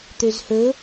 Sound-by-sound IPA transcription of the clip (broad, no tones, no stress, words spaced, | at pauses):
t̪øzhɵ